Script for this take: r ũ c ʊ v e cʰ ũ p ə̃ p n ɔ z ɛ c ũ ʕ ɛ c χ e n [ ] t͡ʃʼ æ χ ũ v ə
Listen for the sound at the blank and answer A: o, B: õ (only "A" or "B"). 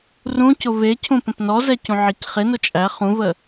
A